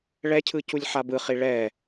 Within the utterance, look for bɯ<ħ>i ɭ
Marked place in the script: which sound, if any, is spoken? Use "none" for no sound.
χ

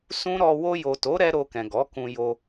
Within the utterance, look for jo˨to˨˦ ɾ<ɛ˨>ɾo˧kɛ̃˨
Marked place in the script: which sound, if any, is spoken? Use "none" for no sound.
ɛ˦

